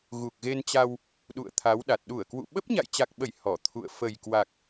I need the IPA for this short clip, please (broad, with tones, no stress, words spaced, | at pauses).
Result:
ɣu˨˩k̚ɣe˧nt͡ɕa˧w | ɗṵ˧˨ə̯t̪ʰa˨˦wɗa˨˩t̚ ɗu˧˩ə̯kwṵ˧˨ɓə˦˥p̚ ɲa̰˧˨jt͡ɕa˨˩k̚ɓə˧˩j hɔ˧˩ t̪ʰṵ˧˨ə̯ fə˨˩jkwa˨˩k̚